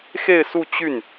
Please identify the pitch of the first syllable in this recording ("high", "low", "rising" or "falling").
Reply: falling